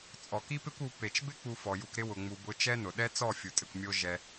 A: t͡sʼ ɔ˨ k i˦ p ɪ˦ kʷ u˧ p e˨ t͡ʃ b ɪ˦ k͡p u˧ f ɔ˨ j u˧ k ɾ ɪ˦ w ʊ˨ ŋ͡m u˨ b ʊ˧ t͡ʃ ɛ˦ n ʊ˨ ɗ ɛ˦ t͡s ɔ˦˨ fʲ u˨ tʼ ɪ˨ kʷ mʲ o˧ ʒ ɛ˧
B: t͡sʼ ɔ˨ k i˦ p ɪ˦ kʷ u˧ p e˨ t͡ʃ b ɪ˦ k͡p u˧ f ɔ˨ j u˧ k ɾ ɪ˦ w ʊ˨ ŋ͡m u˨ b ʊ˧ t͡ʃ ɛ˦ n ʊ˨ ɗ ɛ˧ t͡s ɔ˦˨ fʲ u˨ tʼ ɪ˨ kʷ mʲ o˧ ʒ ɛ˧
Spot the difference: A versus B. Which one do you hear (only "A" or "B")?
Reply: A